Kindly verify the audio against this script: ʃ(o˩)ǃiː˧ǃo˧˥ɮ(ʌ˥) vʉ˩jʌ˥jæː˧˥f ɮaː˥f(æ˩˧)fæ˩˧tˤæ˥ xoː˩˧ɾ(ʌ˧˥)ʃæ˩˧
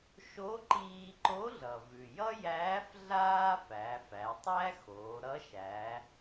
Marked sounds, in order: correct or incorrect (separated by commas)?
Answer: incorrect, incorrect, correct, correct